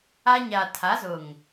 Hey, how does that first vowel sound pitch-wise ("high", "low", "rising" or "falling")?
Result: high